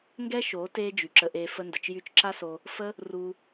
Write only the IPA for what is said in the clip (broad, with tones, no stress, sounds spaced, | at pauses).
ŋ ɡ ɛ˦ ʃ oː˨˦ t eː˧ d͡ʒ y˨ ǁ ə˧ ʔ eː˧ f ə˧ n d ə˨ t͡ʃ j y˧ t͡ʃ ǁ a˦ s o˧ | f ə˦ | r u˧